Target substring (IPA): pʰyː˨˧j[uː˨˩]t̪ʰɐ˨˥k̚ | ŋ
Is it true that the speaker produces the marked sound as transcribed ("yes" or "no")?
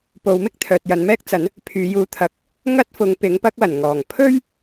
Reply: no